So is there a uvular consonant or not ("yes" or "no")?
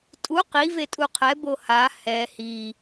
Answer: yes